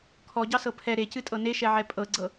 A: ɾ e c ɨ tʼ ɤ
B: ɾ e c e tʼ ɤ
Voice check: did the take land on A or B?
A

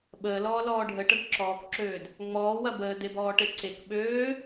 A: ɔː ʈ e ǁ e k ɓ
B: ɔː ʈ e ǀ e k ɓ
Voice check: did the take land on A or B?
B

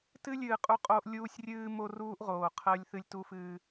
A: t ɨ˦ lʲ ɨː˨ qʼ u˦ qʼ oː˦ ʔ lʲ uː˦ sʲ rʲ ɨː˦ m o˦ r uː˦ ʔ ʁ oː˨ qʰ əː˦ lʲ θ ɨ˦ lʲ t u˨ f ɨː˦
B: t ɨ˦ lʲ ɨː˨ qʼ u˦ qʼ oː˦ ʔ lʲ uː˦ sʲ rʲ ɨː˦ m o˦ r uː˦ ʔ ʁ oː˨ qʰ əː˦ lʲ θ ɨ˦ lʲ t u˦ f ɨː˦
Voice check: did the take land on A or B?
B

